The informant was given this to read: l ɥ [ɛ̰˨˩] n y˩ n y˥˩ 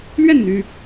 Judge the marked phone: incorrect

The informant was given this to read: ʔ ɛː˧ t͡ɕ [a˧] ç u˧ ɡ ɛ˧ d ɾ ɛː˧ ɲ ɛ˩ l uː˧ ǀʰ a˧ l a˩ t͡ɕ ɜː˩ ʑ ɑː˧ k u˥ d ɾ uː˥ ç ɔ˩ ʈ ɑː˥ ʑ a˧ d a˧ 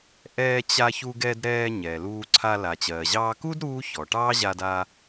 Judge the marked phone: correct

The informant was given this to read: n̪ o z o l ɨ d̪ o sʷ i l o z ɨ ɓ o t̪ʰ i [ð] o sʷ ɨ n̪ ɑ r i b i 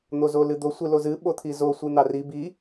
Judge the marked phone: incorrect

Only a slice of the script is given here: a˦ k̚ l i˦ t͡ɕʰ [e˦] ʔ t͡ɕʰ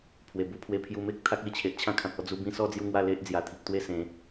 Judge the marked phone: incorrect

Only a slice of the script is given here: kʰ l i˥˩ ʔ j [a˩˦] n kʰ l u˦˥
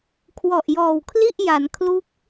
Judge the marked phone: correct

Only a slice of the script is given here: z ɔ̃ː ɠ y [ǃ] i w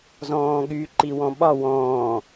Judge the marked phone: correct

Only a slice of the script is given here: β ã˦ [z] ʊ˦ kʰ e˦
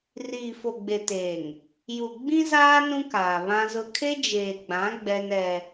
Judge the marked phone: correct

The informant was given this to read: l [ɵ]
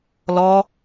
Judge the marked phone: incorrect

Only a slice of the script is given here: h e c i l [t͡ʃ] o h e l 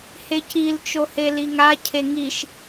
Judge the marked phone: correct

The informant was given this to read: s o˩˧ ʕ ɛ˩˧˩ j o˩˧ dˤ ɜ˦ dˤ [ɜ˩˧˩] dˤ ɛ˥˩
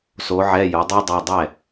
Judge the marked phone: correct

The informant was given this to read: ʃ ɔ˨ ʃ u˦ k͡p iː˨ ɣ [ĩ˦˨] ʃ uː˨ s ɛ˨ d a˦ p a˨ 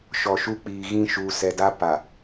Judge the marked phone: correct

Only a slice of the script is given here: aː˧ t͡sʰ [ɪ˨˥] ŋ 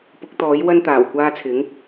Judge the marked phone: correct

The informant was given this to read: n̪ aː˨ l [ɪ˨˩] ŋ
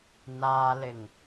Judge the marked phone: correct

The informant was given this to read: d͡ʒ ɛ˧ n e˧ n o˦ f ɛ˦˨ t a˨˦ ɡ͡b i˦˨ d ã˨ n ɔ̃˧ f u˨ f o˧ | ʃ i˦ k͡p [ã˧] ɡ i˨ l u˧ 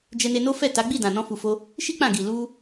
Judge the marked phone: incorrect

